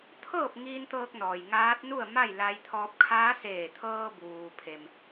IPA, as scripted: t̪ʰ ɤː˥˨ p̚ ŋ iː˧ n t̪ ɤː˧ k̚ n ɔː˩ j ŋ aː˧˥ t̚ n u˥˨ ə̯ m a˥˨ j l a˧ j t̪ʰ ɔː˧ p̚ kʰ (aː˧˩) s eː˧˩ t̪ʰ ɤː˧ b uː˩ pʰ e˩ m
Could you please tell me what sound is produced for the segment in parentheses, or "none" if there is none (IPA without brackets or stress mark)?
aː˧˥